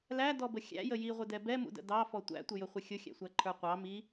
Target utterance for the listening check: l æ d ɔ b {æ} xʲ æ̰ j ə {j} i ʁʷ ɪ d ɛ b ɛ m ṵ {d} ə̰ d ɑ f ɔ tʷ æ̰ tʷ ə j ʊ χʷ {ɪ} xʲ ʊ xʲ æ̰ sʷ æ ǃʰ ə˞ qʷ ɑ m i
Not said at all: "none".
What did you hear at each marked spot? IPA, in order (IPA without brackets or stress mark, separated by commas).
ə, j, d, ɪ